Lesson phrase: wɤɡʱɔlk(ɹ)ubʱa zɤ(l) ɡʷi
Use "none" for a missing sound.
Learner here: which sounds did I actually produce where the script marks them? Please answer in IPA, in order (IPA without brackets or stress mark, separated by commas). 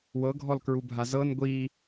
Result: ɹ, n